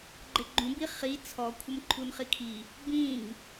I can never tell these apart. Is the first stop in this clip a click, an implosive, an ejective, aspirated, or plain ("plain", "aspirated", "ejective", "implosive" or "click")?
click